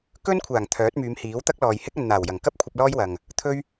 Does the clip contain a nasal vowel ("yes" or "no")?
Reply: no